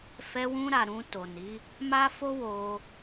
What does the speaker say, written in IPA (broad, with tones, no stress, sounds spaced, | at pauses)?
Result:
f ɛ˧ w ũ˧ ɾ a˨ ɾ ũ˧ t o˨ n i˨˦ | m a˦ f o˦ w o˧